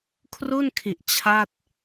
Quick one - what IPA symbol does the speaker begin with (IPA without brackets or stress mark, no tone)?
kʰ